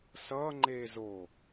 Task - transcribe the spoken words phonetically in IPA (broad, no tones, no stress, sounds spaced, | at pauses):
s ʌː ŋ͡ǃ eː z o